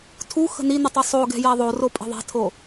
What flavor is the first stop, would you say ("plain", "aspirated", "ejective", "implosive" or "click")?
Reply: aspirated